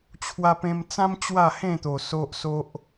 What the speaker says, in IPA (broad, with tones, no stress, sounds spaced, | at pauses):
t͡ɕʰ w a˧ p ẽ˧ m t͡s ã˦ m t͡ɕ w a˥˧ h ẽ˥˧ t̪ o˨˩ s o˦ ʔ s o˦ ʔ